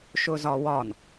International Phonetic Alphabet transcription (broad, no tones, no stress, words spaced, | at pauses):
ʃʊzɒwɒn